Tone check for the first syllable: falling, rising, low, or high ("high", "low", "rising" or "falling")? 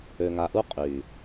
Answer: low